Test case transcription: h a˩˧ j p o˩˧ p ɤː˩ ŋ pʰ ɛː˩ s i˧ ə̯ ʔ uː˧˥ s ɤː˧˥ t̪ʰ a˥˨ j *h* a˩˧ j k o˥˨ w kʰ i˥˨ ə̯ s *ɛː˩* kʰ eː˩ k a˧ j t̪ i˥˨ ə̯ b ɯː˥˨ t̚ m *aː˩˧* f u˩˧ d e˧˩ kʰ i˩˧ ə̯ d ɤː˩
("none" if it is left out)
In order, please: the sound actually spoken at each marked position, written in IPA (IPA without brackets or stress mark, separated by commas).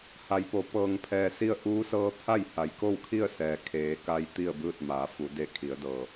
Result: h, ɛː˩, aː˩˧